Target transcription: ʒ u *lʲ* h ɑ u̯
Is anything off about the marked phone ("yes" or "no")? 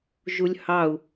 no